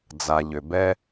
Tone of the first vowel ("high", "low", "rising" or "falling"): low